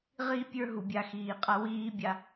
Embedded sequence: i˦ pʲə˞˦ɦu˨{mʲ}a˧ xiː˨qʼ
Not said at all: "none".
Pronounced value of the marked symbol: bʲ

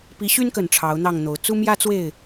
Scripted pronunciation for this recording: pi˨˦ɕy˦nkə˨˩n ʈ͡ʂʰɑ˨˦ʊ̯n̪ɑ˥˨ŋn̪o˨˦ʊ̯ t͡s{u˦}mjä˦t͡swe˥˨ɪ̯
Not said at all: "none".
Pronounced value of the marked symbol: u˦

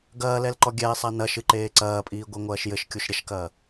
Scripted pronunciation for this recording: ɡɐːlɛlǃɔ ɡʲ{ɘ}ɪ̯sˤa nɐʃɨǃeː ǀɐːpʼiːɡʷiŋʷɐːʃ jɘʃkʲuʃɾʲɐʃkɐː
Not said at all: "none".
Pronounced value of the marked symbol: ɛ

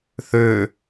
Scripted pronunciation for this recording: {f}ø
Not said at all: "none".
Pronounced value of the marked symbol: θ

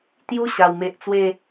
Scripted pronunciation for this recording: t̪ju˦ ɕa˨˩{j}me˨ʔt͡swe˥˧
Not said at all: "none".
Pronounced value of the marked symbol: w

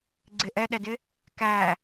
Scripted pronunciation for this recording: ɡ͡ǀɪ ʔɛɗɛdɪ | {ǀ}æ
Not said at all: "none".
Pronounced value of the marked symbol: k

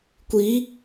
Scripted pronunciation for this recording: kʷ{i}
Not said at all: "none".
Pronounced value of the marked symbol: i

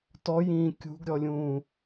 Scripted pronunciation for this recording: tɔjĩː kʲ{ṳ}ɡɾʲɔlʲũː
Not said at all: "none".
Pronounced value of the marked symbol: ṳ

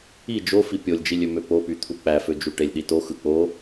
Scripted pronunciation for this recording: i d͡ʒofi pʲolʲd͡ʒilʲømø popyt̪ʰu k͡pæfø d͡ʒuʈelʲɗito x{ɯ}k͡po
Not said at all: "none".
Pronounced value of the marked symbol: ɯ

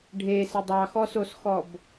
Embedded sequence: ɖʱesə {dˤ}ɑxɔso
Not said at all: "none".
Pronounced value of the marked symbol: dˤ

